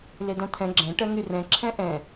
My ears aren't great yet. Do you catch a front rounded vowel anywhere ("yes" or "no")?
yes